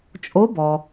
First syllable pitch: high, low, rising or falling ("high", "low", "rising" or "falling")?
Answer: rising